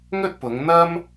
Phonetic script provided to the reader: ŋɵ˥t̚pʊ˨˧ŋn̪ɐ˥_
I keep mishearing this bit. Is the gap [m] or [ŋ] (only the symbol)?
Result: m